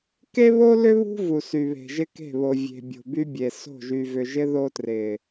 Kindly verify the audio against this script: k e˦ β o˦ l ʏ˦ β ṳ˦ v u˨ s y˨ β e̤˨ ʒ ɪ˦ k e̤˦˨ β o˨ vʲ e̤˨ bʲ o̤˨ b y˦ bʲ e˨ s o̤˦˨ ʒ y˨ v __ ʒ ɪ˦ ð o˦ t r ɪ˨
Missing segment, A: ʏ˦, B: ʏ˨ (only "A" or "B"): B